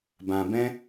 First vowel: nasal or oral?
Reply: nasal